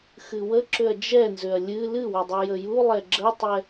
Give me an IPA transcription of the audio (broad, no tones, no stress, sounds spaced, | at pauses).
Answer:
x ɨ w ə ǁ ʏ ɐ̯ d͡ʒ ɛ n z ʏ ɐ̯ lʲ ɨ l ɨ w ʏ dˤ ɨ j ə j u lˠ ɛ ɡ͡ǁ ə tˤ ɛ